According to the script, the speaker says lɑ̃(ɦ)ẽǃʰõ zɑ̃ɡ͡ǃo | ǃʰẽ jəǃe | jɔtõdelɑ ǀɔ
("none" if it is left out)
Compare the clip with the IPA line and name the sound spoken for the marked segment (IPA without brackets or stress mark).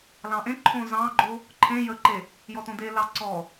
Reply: ʔ